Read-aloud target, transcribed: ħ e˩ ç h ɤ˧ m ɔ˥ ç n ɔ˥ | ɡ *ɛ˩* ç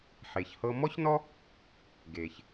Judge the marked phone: incorrect: e˩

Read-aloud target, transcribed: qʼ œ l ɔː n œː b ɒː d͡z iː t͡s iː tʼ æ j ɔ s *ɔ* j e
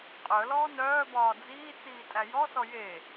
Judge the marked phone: correct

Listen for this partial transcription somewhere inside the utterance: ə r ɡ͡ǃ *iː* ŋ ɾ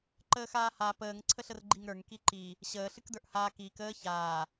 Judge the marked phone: incorrect: i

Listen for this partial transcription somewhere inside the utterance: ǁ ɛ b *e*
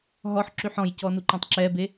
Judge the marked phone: correct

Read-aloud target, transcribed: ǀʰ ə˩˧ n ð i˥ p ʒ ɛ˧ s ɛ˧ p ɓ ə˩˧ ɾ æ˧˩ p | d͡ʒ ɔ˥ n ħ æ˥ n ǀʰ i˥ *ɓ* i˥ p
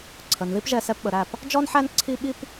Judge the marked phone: correct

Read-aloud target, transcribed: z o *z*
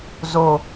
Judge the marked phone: incorrect: none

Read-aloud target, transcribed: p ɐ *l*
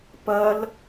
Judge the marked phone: correct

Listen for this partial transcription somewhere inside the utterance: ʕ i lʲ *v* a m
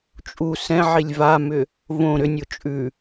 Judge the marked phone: correct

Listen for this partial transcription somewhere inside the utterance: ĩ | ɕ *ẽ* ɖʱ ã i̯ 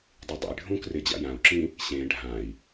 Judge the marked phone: correct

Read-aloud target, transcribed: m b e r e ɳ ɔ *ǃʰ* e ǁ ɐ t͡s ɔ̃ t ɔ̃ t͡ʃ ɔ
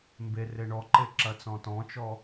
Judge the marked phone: incorrect: ǃ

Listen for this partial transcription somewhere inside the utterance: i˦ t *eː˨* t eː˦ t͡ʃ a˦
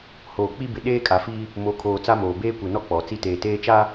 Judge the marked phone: correct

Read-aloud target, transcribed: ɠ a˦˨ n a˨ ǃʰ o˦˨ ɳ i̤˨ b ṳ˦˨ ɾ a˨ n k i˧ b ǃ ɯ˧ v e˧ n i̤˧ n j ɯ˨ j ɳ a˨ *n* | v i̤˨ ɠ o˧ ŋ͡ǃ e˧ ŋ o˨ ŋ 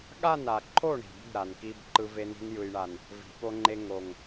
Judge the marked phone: correct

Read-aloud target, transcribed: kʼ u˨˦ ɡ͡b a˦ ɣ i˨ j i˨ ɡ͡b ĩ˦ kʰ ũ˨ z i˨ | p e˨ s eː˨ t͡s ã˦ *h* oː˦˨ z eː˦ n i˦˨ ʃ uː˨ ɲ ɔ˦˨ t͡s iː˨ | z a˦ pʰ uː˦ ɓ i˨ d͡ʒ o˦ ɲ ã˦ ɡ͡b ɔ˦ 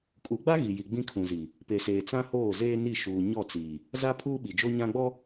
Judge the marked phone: correct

